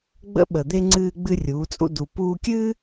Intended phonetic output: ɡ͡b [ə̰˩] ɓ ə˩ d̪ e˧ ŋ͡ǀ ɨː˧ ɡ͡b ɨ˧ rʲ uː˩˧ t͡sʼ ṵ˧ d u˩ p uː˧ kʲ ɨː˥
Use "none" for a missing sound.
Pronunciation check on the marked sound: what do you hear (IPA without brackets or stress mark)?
ə̰˧˥